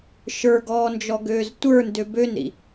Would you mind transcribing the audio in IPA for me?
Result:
ʃ ə˞ ɡ ɔː n d͡ʒ ɔ ɡ øː z tʷ ə˞ n d ø b ø n ɾ ḭ

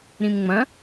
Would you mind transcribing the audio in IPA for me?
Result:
ɾ ĩ m ŋ͡m ɐ̃

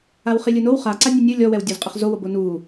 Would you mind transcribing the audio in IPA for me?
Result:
a w χ i lʲ ɯ n o w χ a ǀ a nʲ u nʲ ɯ lʲ ɔ w ɛ w dʲ ɔ z qʼ e χ z o w o b o n u

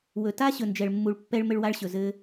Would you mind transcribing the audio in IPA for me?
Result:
w ɵ˨ t a˦ ɕ ɵ˨ n d͡ʒ ɛ˨ ɭ mː u˨ ɭ pː ɛ˧ ɭ m ɘ˧ ɭ w a˧ ɭ ɕ ɵ˨ z ɘ˦

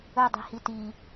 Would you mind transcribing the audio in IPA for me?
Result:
ɵ dˤ i̤ h i t i

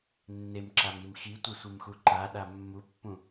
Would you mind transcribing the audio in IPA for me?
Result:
nː e m ǁ a m i m x i tʷ e sʷ ɯ m x u ǃ a ɗ a mː u pː ũ

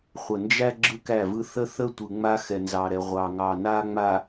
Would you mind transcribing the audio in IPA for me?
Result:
χʷ ə˨ n d͡ʒ æ˦ ɡ͡ǁ ɯ˦ k æ˦˨ v ɯ˦ θ ə˦ θ ə˦ tʷ ɯ˨ ŋ͡m a˦ x ɛ˨ n z ɑ˨ ɾ ɛ˨ ʁʷ ɑ˨ ŋ ɑ˨ n a˦ ŋ͡m a˨

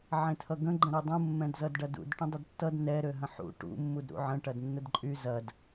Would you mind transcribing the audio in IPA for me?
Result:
ʕ ẽ tʰ ʌ ɡ ə̃ ɡ͡ǃ ə̃ ɾ ø dˤ ũ mː ɛ̃ d z ʌ d ɖ ɐ d ṵ d ʈ ə̃ dˤ ə d tː ʌ d n ɛ ɾ ø ɦ ə̃ ħ ṵ ʈ ṵ mː u d ɾ ṵ ʕ ə̃ ʈ ɐ d nː ə d ǃʼ y z ɐ d

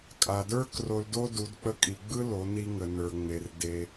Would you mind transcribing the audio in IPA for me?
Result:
kʼ a˩ d ə˞˥ k r o˧ l d o˥ d u˩˧ d k͡p ə˧ kʼ i˩ ɡ͡b ɯ˥ l o˩˧ n i˧ ŋ ə˩ n ə˞˩ ŋ͡m e˩ r d e˩

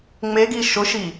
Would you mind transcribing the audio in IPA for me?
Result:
ŋ͡m e ɡ i ʃ ʊ ʃ i

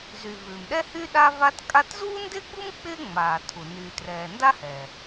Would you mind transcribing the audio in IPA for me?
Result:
z y˩ v ʉː˩ m ɗ ɛ˥ h y˥ ɗ a˥ v a˥ t kʼ a˥ t z uː˥ n d ɪː˥ ɡ͡b u˥ m k͡p ɪː˥ ŋ͡m aː˩ tʰ u˩ n yː˩ t r ɛː˩ n d a˥ h ɛː˩

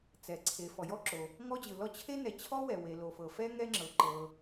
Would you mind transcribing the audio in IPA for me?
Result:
t͡s ɛ˩ ǀʰ e˩ f ɔ˩ j ɔ˥ ǁ o˩ | ŋ ɔ˥ d͡ʑ ɯ˩ l ɔ˥ t͡ɕʰ e˥ n ɛ˩ t͡ɕʰ ɔ˥ w ɛ˩ w e˩ l o˩ f ɤ˩ f ɛ˥ ŋ ɛ˥ ŋ͡ǁ ɤ˩ ǃ ɤ˩

